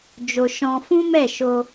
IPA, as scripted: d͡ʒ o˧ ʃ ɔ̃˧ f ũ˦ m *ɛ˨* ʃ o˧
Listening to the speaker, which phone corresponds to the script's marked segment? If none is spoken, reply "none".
ɛ˦˨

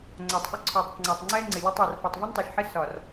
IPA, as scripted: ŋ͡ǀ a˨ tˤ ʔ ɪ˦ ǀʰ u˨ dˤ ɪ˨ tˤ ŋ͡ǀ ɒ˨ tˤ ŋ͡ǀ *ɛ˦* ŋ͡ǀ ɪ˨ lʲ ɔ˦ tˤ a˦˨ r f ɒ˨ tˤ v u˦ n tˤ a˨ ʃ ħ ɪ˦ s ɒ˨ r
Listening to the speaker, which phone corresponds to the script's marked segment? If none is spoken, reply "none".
ɛ˦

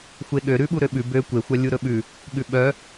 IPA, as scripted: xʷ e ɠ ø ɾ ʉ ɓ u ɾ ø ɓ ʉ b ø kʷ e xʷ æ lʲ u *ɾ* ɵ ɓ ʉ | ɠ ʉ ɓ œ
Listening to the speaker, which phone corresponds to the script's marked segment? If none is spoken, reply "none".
ɾ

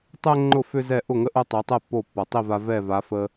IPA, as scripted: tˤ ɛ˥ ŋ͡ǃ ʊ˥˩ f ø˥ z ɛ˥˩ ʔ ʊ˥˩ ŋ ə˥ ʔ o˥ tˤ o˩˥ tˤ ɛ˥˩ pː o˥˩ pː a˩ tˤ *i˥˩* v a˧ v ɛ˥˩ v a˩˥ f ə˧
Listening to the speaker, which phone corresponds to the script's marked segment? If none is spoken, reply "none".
i˥˩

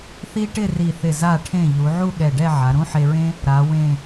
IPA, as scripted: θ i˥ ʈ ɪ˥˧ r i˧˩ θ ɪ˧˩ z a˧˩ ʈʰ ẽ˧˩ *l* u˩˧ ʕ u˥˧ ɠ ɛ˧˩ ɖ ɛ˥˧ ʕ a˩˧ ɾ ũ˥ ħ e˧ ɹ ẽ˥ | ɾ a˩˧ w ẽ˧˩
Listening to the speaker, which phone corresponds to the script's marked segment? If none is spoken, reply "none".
ʎ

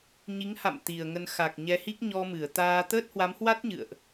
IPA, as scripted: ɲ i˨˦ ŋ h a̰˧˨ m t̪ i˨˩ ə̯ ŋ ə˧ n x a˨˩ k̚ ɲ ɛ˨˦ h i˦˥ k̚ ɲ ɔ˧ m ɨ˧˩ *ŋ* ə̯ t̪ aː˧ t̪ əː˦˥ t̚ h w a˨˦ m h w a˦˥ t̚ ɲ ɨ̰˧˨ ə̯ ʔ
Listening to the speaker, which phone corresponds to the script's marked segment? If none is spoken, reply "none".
none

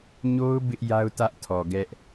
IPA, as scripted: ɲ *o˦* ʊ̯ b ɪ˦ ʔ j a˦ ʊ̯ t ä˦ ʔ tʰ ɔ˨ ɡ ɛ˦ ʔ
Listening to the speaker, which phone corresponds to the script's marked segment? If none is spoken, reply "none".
o˦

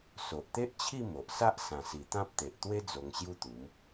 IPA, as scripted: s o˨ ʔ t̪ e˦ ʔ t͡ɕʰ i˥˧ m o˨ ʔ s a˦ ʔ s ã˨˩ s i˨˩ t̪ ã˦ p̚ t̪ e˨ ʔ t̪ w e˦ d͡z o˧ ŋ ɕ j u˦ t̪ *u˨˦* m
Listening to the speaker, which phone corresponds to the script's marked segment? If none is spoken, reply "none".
u˨˦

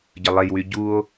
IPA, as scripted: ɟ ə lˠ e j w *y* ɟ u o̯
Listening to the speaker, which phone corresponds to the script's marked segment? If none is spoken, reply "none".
y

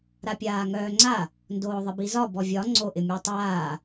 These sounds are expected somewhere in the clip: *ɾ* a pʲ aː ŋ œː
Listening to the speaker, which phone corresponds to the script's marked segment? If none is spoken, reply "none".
ɾ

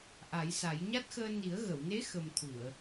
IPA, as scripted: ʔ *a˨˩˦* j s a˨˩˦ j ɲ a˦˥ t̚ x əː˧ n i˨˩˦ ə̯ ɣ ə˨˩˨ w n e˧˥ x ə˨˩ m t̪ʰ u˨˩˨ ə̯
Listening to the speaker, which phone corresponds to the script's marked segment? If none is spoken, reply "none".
a˨˩˦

